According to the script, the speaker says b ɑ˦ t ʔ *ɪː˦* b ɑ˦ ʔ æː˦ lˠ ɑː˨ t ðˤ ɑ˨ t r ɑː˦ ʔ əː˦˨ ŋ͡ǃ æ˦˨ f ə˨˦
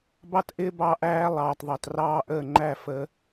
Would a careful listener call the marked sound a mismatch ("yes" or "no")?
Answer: no